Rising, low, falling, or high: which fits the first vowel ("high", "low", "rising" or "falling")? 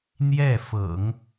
falling